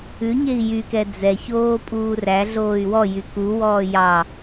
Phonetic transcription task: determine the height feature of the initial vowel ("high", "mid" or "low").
high